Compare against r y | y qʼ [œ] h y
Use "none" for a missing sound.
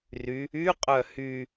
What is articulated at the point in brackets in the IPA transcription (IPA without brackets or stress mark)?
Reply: œ